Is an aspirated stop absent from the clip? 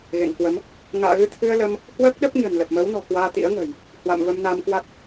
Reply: no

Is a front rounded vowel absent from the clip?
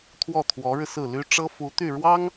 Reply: no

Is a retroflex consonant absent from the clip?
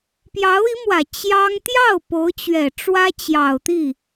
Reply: no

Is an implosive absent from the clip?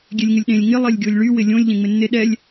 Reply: no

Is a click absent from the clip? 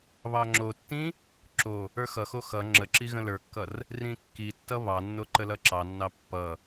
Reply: no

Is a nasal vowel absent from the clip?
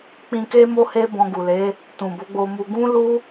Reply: no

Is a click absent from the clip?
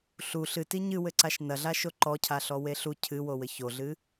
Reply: no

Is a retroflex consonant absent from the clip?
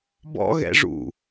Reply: no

